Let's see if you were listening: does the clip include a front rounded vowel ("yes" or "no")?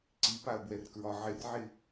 no